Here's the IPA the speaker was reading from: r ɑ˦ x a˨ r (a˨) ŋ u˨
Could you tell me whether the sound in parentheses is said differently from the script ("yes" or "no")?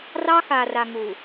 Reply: no